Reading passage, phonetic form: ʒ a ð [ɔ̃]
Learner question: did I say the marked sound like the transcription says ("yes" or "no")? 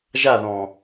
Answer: yes